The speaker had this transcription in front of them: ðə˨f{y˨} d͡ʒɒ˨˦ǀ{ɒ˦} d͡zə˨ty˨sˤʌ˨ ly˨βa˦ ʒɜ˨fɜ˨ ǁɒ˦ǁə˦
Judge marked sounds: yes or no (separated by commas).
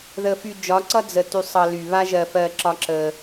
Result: yes, no